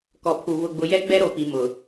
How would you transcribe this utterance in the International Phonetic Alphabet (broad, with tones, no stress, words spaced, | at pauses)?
kɔ˨pʰu˨ βʊ˨ɡ͡bʊ˨jɛ˦ ɡ͡bɛ˦ɾo˨pi˨ mʊ˨